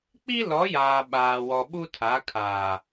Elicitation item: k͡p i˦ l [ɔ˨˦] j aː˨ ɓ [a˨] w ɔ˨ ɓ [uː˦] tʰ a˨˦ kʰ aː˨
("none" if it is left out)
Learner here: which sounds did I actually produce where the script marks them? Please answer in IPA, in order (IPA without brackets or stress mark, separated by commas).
ɔ˨˦, aː˨, u˦